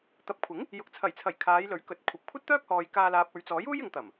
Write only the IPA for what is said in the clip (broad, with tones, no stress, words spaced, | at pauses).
t̪ɐ˨˥p̚ kʷʰɪ˨˥ŋ | jʊ˨k̚t͡sʰɐ˨˩jt͡sʰɐ˨˩j kʰaː˨˧jlɵ˨˥ɥkɵ˨˥t̚ kʷʰɐ˨p̚ kʷʰɐ˥t̚t̪œː˥k̚hɔː˨j kaː˧ laː˨p̚ɵ˨ɥt͡sɔː˨˥j uː˥jɪ˨˧ŋt̪ɐ˨˩m